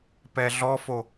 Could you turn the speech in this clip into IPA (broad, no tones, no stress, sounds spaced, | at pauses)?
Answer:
p ɛ ɮ ɔ f o